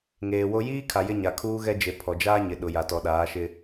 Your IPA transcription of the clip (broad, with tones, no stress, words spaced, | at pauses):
ŋeː˨wo˦ jiː˦kʰa˨ jɪ˦ɲa˨kʰuː˦ɣɛ˦ d͡ʒe˨pʰɔ˨d͡ʒaː˦ɲɪ˨ ɗʊ˨ja˨tɔ˨ɗaː˨˦ ʃɪ˦